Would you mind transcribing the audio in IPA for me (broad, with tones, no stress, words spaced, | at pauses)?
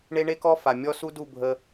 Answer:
ɳe˦ɳe˦kɔ˦ fa˨ mʲɔ˦su˦du˦˨ bʱə˦